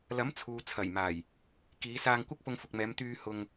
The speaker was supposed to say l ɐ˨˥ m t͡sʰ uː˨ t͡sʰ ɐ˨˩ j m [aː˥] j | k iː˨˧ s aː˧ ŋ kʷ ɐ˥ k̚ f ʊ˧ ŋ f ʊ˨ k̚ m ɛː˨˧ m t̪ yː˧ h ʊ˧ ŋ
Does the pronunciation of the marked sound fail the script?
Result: yes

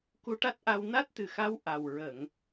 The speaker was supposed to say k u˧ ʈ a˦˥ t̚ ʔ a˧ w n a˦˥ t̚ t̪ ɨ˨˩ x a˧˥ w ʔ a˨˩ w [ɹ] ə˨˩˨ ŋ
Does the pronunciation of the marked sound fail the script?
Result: no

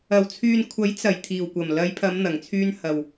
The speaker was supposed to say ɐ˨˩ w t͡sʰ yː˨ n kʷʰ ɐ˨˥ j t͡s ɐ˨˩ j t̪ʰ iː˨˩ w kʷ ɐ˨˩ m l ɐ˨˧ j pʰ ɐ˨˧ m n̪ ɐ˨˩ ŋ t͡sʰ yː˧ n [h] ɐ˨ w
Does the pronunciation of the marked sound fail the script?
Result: no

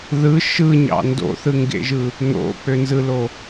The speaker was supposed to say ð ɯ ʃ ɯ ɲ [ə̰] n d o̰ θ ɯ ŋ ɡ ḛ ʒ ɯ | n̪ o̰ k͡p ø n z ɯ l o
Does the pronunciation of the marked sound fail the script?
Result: yes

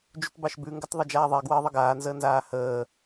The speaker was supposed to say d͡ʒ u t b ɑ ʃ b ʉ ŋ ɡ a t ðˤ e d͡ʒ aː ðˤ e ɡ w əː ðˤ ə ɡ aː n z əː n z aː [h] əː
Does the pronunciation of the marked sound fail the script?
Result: no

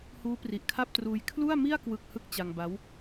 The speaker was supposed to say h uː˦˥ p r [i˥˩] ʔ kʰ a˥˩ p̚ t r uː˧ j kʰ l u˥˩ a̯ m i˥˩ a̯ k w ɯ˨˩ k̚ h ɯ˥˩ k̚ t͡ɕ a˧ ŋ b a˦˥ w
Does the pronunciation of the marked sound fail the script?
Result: yes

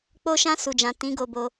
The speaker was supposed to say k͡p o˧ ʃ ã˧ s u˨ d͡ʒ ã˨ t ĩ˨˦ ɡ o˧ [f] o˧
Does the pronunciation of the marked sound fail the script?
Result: yes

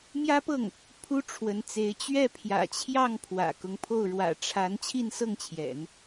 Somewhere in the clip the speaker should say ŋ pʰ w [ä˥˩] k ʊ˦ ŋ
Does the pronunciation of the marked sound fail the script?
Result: yes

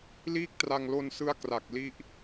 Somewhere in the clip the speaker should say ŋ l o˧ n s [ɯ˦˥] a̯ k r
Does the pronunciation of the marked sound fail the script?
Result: no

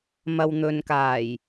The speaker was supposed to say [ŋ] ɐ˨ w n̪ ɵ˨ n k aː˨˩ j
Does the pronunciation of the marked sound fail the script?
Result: yes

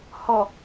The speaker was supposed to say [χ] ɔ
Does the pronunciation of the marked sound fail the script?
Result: yes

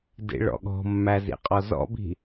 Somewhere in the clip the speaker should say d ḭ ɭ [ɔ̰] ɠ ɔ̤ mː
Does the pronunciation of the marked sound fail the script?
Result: no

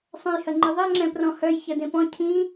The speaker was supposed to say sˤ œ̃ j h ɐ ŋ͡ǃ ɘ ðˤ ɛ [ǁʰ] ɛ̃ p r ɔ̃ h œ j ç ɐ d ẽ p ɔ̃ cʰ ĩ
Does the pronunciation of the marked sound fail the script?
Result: yes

